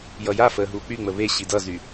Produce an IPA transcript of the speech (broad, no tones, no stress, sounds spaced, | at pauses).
j ʌ j a f əː ɦ uː k͡p y ŋ͡m ə β e ɕ i d ʌ z y